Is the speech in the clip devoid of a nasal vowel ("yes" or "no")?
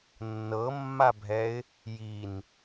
yes